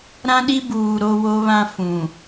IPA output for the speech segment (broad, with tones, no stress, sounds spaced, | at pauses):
ɾ ã˦ ɗ i˦ b uː˨ ɾ o˦ w o˦ β ã˦ f ũ˨